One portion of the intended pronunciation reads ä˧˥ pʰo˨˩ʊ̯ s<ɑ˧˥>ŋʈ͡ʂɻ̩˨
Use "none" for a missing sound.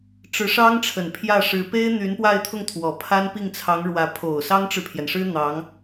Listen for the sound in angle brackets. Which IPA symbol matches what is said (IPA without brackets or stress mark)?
ɑ˥